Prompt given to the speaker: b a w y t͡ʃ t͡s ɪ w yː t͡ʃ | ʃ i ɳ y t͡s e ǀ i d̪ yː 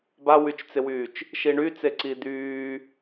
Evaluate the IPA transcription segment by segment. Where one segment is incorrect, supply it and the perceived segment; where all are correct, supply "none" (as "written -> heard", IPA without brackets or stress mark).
none